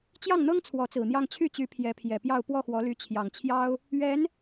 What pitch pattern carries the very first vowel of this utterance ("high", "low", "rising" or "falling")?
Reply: falling